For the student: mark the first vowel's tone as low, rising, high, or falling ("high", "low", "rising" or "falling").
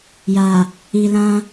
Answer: low